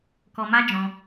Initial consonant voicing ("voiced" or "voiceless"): voiceless